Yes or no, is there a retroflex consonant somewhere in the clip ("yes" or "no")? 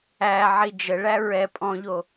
yes